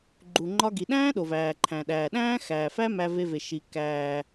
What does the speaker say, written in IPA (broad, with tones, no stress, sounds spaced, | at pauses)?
ɡ͡ǃ u˩ ŋ͡ǃ ɒ˧ ɡ i˩ ɗ æ̃ː˥ ɗ o˩ v æː˩ ǃʰ æ̃˩ ɗ æː˩ ɗ æ̃ː˥ x æː˩ f æ˥ m æ˧ v e˧ v e˩ ʃ i˩ k æː˩